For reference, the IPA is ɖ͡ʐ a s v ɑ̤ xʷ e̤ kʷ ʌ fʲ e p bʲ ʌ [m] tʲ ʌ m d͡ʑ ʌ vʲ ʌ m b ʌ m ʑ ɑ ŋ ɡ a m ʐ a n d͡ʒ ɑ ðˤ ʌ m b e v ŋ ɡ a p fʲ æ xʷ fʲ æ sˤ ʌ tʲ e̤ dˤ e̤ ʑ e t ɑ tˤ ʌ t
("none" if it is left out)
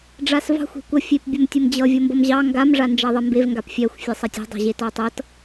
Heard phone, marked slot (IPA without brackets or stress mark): m